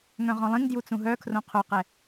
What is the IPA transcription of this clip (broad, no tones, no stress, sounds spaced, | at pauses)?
ŋ œ̃ ʁ ɔ̃ lˠ ĩ ŋ d j u t͡s ũ ɦ œ kʰ r õ qʰ o q ɛ